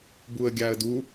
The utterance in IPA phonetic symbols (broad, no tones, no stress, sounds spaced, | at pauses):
b u ə̯ ɡʲ a ə̯ d u